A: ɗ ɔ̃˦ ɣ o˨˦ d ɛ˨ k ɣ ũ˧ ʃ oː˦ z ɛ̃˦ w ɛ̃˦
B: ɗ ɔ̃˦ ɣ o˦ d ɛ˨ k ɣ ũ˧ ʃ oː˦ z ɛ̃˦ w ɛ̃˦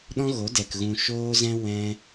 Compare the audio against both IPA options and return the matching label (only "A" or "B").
A